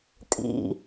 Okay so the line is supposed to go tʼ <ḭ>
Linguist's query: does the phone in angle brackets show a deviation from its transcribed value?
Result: no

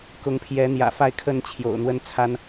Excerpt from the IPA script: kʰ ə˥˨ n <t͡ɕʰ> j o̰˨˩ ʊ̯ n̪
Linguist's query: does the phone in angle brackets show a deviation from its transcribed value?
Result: no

